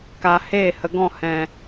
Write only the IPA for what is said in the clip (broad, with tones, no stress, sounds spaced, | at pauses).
k a˨ h eː˦˨ h ə˨ ɡ ɔ̃˦˨ h ɛ̃˨